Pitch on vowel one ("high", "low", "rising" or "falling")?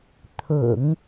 low